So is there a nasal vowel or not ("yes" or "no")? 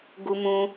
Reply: yes